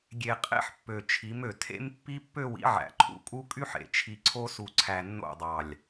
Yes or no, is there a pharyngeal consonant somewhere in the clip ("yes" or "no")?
yes